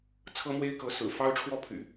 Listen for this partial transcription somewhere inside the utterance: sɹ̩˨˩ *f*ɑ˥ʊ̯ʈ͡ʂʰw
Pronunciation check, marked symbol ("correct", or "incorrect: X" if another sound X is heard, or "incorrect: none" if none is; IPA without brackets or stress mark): correct